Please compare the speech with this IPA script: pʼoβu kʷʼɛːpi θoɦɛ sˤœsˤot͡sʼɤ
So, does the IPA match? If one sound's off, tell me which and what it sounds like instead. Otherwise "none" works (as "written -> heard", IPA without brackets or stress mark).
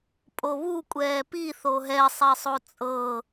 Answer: œ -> ɛ